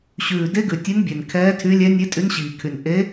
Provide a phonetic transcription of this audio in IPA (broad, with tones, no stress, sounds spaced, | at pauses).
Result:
ɕ ʉː˨˩ d e˧˥ ɡ ʉ˨˩ tʲ e˧˥ n bʲ ɛ˨˩ n kʰ ɛː˧˥ tʰ y˧˥ lʲ ɛ˧˥ nʲ e˧˥ tʼ y˧˥ n ɕ iː˨˩ kʰ y˨˩ n ʔ e˧˥